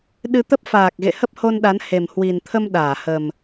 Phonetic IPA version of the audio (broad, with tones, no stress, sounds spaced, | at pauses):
ɗ ɨ˧ t̪ ə˦˥ p̚ f aː˨˩ k̚ ɣ ḛ˧˨ h ə˦˥ p̚ h o˧ n ɗ a˨˦ n h e˨˩ m h w i˨˩ n t̪ʰ ə˧ m ɗ aː˧˩ h ə˨˩ m